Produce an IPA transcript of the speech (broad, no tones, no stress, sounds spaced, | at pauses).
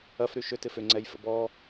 ɐ f ɾ y ʃ ʏ t ɪ f ʏ ŋ͡ǀ ɛ j f ə̰ b ɔ